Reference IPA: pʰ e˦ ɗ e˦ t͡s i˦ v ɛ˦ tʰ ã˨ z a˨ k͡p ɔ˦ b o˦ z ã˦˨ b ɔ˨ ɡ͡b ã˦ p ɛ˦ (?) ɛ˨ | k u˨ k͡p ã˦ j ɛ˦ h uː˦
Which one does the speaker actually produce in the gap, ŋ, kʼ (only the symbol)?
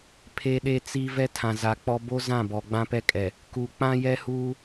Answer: kʼ